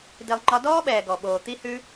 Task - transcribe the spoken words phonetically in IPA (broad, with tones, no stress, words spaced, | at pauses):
di˧lˠŋ͡ǃɒ˦ dɔː˦ɓɛː˨ ɡɔ˨ɓoː˨ t̪i˦hʉ˦